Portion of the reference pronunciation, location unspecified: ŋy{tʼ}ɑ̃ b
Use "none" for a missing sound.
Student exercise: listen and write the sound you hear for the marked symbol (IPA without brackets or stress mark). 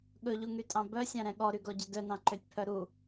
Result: tʼ